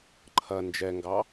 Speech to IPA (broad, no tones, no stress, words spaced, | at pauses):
ǃʰɐ nd͡ʒɛŋɡɑ